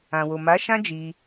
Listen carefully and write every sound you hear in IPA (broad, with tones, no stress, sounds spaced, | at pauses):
ã˨ w o˨ m a˨˦ ʃ ã˦ d͡ʒ i˧